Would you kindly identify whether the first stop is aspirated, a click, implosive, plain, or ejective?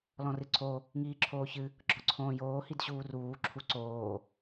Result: click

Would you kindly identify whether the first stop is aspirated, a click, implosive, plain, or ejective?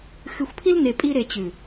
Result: aspirated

